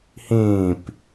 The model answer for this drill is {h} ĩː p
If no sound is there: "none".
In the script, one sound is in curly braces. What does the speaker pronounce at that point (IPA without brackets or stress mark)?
h